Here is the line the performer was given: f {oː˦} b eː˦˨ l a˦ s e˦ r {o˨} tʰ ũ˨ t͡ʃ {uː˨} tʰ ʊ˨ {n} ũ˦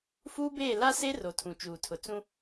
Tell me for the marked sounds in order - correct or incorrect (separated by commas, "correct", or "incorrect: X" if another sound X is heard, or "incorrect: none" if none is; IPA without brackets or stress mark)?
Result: incorrect: uː˦, correct, correct, incorrect: t͡s